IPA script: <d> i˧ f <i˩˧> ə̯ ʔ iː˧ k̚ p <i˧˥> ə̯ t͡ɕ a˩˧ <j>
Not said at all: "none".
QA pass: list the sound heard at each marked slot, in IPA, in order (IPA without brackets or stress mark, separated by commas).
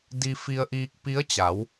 d, i˧, i˧˥, w